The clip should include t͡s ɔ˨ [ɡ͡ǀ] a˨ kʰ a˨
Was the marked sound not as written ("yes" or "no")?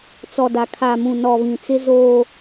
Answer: yes